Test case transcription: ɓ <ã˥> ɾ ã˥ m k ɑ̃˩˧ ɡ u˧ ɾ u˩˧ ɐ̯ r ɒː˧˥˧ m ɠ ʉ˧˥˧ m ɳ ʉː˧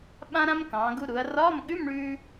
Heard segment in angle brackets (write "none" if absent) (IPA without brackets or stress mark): ã˥